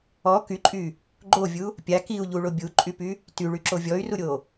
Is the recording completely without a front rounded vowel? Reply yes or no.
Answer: no